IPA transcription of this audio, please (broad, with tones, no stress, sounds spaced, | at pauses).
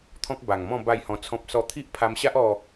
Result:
t̪ʰ ɔ̃˦ k̚ b a˨˩ ŋ m ɔ̃˥˧ b a˥˧ j h ɔ̃˧ t͡sʰ ɔ̃˦ p̚ s ɔ˥˧ t̪ʰ i˦ ʔ pʰ a˧ m ɕ a˦ ʔ ɔ˥˧